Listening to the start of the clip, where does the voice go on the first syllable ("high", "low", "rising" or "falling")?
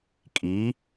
rising